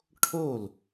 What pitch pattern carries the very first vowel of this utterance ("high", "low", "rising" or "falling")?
falling